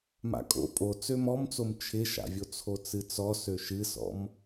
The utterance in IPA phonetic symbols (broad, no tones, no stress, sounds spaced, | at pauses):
m a̰ kʼ o̰ pʼ o t͡s ø m ɔ m t͡s o m t͡ʃʰ ɪ ʃ a̰ vʲ o t͡sʰ o t͡s ɨ t͡s ɔ s ø ʃ ɨ s ɔ̰ m